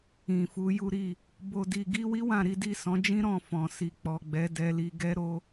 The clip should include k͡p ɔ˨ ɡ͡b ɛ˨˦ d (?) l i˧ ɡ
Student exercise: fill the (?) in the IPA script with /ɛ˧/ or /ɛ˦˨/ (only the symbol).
ɛ˧